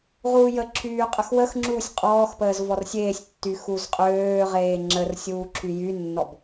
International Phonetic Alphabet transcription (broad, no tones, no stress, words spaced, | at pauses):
ʁuːjəǁʰyː qʼəxwəxŋ͡ǁuːsʲ qʼɔːxpəːz vɔrsʲeːsʲtːy xuzqʼøːʁeː ŋ͡ǁər sʲuːǁʰyjynːɔb